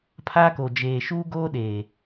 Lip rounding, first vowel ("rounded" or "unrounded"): unrounded